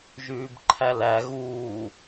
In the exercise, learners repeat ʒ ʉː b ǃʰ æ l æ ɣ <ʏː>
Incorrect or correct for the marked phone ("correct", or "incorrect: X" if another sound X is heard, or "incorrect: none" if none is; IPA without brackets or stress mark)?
incorrect: uː